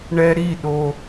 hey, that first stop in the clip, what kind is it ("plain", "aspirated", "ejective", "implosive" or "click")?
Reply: implosive